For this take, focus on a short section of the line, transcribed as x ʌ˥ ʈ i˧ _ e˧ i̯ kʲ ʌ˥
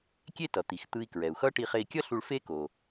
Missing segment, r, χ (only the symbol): χ